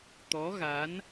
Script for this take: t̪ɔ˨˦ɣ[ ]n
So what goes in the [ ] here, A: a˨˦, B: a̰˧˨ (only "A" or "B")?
A